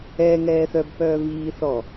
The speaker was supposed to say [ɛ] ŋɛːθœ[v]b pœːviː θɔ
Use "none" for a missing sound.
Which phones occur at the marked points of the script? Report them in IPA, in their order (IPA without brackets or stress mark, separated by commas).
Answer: ɛ, none